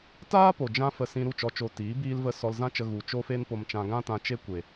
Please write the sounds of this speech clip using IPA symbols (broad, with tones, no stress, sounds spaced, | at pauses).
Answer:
t aː˦ p o˨ d͡ʒ ã˧ f ə˧ s ĩ˧ ɾ u˦˨ t͡ʃ ɔ˧ t͡ʃ o˧ t iː˨˦ b iː˧ l v ə˧ s ɔ˧ l z ã˦ t͡ʃ ə˧ ɣ u˨ t͡ʃ o˦ f e˦ n p o˧ m t͡ʃ ã˧ ɡ ã˦ t ã˧ t͡ʃ e˦ kʷ e˨